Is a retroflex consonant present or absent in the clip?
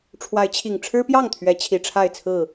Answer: present